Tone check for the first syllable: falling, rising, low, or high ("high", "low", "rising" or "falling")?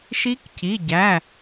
rising